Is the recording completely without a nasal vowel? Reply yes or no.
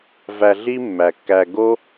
yes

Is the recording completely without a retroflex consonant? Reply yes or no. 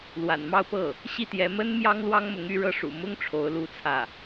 no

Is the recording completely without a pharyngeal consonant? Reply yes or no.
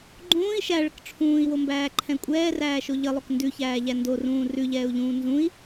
yes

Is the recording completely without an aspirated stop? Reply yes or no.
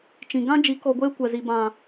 yes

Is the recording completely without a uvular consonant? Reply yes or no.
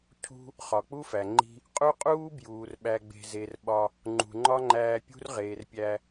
no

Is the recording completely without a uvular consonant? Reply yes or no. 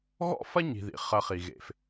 no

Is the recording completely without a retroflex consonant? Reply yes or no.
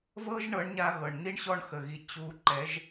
no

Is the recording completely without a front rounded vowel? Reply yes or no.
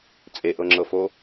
yes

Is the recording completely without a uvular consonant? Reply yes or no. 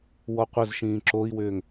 no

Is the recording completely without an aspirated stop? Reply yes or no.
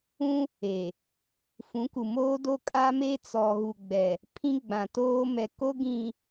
no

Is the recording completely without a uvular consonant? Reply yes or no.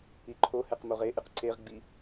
no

